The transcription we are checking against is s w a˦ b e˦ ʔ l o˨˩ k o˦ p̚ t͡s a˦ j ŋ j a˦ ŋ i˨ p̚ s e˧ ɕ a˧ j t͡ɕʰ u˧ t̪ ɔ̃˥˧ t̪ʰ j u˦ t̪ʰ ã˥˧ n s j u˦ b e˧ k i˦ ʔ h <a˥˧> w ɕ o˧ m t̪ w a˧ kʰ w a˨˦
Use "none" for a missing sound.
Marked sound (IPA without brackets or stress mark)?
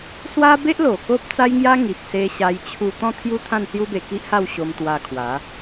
a˥˧